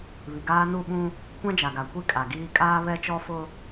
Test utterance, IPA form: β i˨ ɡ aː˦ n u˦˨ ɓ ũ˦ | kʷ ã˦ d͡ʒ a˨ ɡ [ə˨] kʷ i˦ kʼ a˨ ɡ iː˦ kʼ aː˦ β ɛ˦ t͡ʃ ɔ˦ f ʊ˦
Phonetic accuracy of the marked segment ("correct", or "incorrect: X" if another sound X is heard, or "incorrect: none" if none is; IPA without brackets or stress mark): incorrect: a˨